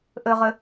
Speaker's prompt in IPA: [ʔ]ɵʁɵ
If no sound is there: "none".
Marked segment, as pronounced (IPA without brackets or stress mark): ʔ